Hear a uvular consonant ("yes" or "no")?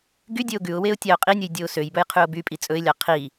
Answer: yes